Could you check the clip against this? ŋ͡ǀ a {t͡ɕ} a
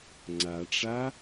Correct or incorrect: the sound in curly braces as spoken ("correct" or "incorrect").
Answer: incorrect